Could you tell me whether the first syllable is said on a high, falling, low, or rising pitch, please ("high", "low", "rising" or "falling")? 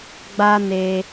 high